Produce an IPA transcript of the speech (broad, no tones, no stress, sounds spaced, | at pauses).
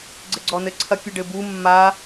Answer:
ɡ͡ǀ ɘ ɡ͡ǀ ɔ n ɘ ǀʰ ɐ kʲ u ɖ ɘ b u mː a